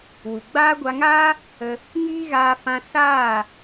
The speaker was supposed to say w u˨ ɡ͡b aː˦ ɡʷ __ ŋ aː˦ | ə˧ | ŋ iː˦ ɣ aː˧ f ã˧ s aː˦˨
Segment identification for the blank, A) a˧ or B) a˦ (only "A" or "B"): A